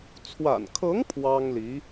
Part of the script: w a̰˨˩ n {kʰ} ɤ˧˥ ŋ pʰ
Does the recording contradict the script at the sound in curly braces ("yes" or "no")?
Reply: no